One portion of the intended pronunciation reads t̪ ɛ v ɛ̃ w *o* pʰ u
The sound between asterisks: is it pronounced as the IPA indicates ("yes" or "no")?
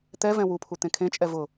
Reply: no